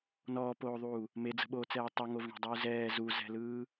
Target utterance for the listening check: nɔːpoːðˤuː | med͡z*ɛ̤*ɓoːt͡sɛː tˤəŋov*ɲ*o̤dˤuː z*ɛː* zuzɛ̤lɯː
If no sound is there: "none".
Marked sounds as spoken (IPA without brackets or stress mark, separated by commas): ə̤, ɳ, ɛː